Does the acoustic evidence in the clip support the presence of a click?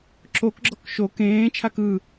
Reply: yes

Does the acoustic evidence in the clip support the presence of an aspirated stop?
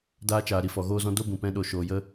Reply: no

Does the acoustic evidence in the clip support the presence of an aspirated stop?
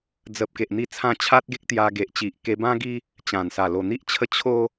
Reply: yes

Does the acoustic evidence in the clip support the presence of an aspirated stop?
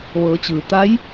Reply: no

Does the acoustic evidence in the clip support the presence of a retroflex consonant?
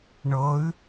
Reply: yes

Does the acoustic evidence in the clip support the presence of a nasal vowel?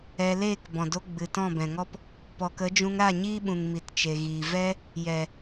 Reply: yes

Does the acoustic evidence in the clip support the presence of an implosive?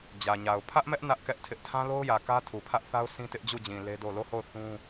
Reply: no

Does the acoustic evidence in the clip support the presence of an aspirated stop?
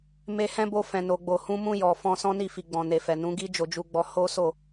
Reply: no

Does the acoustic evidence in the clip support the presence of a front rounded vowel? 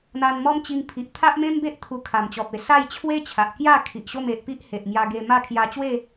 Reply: no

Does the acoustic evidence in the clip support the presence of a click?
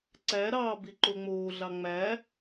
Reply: yes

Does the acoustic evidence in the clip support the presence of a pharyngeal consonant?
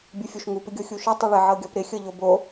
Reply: yes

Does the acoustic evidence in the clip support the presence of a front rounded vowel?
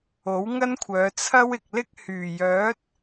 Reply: yes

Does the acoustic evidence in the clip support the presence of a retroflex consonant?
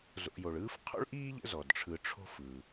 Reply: yes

